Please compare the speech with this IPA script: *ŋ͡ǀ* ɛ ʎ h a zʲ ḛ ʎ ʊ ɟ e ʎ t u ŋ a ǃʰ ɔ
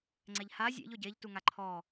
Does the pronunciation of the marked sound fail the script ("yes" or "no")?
no